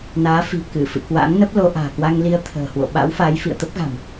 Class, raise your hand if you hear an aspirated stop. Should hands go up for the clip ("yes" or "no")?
yes